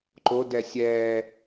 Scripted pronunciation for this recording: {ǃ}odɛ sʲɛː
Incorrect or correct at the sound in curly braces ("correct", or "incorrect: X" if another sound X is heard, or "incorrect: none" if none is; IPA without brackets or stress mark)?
correct